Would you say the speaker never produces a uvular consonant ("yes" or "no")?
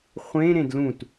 no